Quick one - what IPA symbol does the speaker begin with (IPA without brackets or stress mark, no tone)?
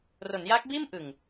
r